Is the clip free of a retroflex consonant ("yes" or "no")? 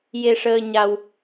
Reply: no